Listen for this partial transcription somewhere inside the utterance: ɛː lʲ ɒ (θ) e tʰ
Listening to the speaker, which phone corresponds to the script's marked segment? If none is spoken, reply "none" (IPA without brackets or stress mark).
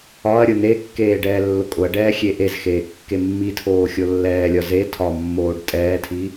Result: z